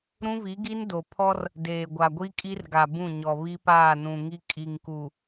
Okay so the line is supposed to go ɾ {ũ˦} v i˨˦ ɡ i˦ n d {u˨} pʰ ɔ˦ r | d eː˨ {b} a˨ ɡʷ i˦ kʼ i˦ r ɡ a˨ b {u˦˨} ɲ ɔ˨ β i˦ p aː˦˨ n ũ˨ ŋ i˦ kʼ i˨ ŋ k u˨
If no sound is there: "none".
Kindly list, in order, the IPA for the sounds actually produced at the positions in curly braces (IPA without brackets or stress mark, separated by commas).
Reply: ũ˦, o˨, ɡʷ, ũ˦˨